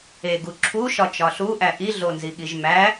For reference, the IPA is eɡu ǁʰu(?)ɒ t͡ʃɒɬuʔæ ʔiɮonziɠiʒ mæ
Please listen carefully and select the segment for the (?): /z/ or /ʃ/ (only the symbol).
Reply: ʃ